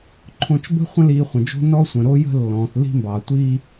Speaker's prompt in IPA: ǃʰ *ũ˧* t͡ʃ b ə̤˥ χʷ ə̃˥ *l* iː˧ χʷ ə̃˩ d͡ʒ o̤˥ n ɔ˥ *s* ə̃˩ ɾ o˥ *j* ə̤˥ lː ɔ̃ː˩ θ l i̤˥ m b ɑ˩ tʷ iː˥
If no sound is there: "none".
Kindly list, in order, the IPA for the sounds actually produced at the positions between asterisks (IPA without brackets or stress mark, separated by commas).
õ˧, l, sʷ, j